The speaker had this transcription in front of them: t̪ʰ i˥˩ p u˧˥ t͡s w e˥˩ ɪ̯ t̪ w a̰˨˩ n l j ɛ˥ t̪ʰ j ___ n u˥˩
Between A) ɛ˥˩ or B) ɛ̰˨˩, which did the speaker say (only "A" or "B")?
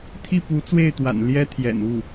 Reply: B